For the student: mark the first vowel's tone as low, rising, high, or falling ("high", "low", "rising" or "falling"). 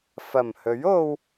low